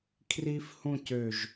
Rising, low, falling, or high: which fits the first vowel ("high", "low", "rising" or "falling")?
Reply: high